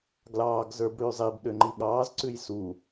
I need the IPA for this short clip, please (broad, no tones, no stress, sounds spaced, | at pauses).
ɡ l ɑː ɡ z ə˞ b ɽ ʉː zˤ i b ɗ ø ŋ͡ǃ i ɠ ɑː z ǀ ʉ j s u